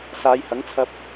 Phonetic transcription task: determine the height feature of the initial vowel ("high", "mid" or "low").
low